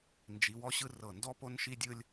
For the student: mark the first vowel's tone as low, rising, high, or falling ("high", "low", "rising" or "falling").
rising